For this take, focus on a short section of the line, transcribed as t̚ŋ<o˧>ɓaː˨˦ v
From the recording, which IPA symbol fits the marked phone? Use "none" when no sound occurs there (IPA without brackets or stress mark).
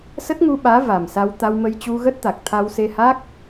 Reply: u˧